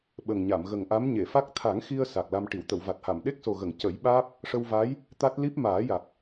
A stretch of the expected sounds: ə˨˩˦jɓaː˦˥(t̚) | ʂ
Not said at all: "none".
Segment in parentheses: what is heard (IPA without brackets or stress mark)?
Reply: p̚